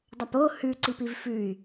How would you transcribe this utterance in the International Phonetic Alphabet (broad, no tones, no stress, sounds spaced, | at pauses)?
dˤ ɐ p o h ʉ ǀ i p i v f ʉ y̯